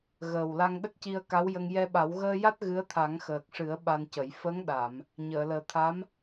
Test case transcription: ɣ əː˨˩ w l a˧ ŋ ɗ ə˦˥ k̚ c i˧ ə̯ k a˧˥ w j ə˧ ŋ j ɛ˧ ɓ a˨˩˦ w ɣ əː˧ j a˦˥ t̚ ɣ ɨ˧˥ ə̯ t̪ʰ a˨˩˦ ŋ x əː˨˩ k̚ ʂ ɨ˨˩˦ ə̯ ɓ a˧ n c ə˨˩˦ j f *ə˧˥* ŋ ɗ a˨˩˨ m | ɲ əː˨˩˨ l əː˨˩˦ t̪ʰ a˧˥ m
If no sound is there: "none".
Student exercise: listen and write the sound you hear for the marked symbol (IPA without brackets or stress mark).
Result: ə˧˥